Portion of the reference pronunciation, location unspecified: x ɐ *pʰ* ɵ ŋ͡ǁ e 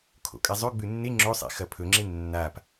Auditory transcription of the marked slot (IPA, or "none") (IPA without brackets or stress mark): pʰ